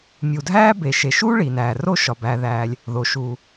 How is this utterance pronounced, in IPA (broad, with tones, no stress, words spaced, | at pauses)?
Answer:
mʲu˩dʱæː˥ be˩ʃe˩ʃuː˥ ɭi˩næː˩ ro˥ʃɒ˩ bæː˩ðæː˩lʲ | ðo˩ʃuː˩